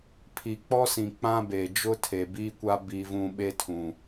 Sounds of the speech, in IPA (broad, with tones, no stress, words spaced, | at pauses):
pʰi˨k͡pɔ˦sĩ˨ k͡pã˦be˨ d͡ʒʊ˦tʰe˨biː˦kʷa˦ bi˦vũ˦ ɓe˦tʰũ˨